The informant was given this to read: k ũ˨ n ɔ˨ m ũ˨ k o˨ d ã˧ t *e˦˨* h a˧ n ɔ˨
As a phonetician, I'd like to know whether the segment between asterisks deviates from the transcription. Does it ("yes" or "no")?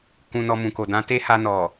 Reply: yes